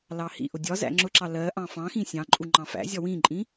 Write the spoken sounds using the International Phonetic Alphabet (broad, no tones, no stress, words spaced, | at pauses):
lɑhḭʔʊ dʲɒ zæ̰ŋ͡ǁʊǁɑ lɜ ʔɑ̃fɑ̃xĩ sʲɑ̃ǃʼu ŋ͡ǃɑ̃fæ̰zʲɒ wĩǃʼĩ